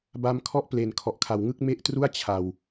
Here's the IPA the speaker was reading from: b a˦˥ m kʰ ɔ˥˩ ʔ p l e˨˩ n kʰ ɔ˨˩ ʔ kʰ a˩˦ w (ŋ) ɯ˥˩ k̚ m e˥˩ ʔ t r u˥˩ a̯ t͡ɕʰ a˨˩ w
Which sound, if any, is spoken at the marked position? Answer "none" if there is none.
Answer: ŋ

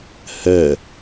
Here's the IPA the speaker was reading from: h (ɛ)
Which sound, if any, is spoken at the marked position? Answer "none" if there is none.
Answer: ɛ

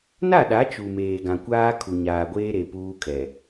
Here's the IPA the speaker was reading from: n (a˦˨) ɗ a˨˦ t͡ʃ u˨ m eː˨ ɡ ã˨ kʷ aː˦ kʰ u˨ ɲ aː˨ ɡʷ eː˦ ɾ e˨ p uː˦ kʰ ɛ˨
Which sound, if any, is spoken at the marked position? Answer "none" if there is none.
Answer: a˦˨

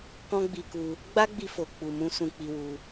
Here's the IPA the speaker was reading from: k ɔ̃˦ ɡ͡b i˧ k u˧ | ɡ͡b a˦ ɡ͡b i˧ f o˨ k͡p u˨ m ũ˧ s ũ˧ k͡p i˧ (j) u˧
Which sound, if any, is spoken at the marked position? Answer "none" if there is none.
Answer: w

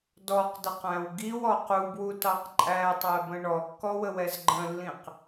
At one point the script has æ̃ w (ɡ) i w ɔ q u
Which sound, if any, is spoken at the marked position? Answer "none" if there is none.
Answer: ɡ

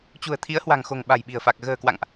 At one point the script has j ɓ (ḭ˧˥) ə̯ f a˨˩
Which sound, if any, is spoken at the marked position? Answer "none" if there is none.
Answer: i̤˨˩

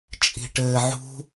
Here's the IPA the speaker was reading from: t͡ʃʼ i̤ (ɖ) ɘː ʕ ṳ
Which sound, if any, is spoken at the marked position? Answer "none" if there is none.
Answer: ʈ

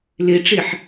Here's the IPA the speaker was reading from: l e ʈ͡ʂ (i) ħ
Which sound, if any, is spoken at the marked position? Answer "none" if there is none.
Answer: e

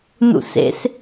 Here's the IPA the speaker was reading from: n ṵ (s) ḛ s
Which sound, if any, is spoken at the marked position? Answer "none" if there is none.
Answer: s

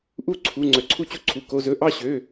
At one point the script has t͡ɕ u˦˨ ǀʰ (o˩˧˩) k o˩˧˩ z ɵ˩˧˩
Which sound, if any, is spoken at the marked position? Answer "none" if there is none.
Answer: u˩˧˩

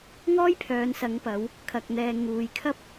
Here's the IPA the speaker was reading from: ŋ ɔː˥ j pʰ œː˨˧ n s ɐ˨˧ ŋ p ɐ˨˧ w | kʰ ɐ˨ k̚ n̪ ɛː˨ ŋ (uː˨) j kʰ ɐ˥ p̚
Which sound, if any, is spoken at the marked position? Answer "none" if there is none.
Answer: uː˨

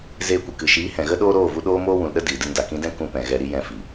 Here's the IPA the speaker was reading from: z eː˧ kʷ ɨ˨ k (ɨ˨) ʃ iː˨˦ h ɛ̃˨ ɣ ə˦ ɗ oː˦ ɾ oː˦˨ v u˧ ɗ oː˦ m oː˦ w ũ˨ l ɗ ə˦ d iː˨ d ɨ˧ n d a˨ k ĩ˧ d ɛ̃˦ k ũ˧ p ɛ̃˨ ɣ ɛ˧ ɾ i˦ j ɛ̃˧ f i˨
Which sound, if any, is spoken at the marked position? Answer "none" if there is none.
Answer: ɨ˨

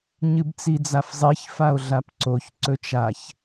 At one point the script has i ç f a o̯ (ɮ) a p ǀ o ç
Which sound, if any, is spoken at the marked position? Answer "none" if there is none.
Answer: ɮ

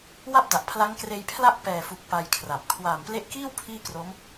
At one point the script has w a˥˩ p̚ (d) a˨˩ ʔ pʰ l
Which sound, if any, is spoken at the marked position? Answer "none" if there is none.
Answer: d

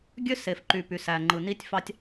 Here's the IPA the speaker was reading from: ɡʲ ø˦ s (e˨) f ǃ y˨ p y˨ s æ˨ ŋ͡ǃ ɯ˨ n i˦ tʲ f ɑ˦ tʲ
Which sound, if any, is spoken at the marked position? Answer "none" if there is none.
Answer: e˨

